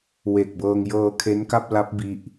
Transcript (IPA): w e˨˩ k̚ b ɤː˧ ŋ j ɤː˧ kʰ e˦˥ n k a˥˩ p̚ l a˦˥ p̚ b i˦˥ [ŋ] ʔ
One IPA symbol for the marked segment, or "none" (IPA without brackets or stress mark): none